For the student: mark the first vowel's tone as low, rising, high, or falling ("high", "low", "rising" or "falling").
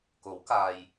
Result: rising